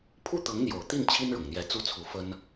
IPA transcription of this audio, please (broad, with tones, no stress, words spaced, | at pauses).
pʰu˥˩t̪ɤ˧˥ŋn̪jo˨˩ʊ̯t̪i˥˩n t͡ɕʰi˥nɻʊ˨˩ŋn̪jɛ˧˥ t͡su˥t͡sʰu˧˥fə˥n